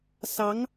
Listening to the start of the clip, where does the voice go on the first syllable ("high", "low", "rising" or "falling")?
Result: rising